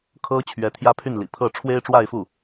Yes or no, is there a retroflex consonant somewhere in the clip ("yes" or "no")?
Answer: yes